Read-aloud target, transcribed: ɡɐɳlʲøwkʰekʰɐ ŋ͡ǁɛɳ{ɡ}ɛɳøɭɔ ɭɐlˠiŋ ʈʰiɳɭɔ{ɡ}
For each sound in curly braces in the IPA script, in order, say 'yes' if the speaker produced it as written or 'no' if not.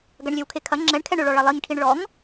no, no

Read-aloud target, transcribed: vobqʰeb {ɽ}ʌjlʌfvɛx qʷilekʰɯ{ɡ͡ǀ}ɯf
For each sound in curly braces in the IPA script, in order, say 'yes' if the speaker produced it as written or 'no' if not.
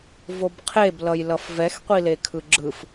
no, no

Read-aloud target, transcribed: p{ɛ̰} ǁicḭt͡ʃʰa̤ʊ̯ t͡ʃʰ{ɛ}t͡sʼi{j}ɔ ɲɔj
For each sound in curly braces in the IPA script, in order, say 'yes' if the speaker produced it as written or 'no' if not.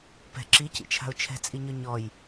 no, no, no

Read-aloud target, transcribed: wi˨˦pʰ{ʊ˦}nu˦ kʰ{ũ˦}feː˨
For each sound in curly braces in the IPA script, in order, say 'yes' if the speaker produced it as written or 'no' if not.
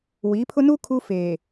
yes, no

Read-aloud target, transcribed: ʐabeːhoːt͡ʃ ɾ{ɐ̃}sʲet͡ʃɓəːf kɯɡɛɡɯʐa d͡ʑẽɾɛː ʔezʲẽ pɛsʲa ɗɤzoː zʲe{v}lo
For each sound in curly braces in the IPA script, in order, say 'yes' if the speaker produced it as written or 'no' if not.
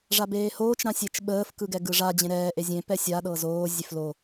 no, no

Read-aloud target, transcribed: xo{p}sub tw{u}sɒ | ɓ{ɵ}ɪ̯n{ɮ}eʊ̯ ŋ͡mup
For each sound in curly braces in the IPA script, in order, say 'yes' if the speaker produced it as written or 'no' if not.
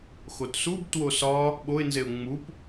no, no, no, no

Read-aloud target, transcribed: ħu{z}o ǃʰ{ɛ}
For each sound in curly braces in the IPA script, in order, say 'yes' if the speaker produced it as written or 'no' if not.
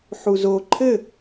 yes, no

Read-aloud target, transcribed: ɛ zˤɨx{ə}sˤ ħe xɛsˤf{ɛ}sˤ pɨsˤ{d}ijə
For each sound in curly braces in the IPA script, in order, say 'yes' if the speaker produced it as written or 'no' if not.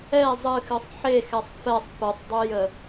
no, yes, no

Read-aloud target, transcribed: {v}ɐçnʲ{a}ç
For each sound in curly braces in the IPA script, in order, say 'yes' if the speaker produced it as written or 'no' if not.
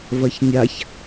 yes, yes

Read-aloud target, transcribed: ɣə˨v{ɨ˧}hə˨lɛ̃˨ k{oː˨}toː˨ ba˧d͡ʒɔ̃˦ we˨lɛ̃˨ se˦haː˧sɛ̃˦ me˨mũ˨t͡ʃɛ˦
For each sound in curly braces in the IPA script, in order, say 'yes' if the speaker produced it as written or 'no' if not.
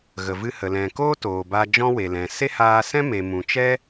yes, no

